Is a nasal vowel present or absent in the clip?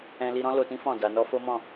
present